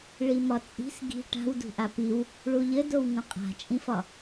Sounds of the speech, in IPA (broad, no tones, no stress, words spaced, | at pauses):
ɭimɒt͡sʼi̤s ɡi̤ ʈa̤wdṳʔa piw | ɭuʎɘdow ŋõqʼa̤t͡ʃʼĩfɒ